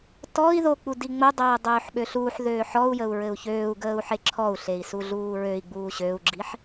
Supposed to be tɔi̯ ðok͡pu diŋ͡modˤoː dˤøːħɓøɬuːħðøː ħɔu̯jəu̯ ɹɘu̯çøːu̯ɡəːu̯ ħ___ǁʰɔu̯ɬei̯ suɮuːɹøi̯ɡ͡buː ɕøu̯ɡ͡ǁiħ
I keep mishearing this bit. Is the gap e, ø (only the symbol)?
e